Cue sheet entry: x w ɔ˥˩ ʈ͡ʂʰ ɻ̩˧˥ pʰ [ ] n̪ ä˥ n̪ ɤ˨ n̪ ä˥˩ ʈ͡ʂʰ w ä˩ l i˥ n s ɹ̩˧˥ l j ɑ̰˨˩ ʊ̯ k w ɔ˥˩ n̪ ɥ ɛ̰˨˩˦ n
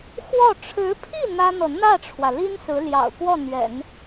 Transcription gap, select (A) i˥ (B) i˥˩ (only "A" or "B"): B